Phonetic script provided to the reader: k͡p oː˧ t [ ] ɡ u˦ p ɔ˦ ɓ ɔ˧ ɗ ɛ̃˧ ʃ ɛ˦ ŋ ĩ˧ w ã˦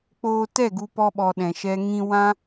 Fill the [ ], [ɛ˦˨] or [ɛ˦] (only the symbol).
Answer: ɛ˦˨